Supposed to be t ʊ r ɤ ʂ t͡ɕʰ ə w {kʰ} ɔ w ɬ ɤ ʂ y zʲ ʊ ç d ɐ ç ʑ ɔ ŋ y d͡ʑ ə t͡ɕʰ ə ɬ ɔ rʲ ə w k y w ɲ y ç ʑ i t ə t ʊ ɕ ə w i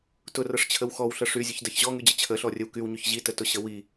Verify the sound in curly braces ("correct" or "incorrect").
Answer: incorrect